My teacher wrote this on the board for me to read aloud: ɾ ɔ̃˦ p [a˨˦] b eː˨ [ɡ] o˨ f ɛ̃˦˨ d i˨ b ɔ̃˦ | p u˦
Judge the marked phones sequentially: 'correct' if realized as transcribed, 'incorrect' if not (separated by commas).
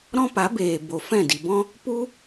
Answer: correct, incorrect